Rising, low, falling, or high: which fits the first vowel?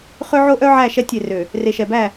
high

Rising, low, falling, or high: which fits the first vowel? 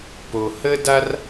low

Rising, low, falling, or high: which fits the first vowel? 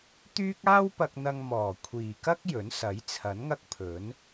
high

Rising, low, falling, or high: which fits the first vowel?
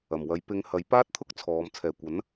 low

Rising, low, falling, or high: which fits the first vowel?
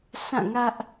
falling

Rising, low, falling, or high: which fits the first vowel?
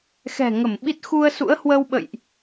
low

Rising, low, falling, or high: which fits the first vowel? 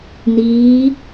rising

